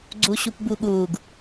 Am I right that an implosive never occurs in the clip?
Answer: no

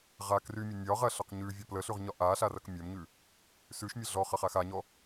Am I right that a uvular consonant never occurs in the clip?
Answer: no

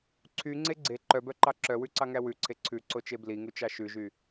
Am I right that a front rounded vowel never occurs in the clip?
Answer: no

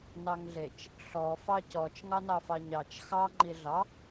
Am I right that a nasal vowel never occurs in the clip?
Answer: yes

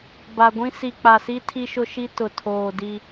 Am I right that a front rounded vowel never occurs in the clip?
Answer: yes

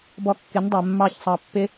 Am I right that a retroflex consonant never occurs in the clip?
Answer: yes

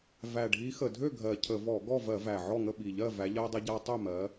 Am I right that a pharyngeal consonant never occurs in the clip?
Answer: no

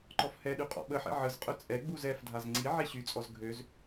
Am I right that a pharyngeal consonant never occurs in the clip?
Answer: no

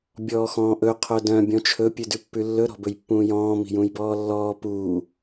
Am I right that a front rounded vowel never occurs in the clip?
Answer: no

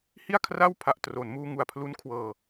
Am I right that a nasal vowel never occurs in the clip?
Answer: yes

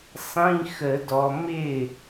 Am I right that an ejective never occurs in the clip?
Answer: yes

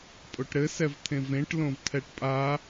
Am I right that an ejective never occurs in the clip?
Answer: no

